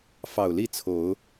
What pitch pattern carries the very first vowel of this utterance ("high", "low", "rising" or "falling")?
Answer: low